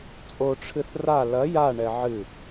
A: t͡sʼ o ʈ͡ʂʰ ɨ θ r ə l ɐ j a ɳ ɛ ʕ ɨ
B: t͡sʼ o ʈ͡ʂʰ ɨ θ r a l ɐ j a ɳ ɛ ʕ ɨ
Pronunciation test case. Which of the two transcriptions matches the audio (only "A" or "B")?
B